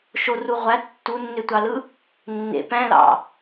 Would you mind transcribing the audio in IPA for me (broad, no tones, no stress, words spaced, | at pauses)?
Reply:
ʃoru ʁʷæ tːunːøtʷɑlɯ | nːḛ pæ̃lɑ̰